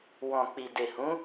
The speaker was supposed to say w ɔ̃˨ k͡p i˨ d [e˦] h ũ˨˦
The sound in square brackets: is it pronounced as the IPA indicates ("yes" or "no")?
no